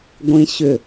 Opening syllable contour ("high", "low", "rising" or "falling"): high